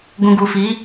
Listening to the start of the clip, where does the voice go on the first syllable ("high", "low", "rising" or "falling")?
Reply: low